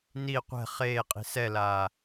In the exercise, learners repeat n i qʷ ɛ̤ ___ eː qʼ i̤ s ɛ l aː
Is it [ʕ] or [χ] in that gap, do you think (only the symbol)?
χ